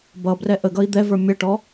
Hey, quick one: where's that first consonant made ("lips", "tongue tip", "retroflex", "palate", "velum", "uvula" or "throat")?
lips